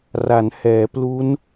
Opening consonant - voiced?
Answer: yes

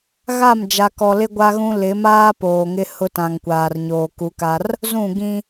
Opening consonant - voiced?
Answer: yes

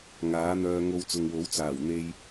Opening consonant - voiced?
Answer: yes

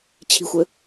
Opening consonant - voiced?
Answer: no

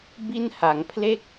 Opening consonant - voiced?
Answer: yes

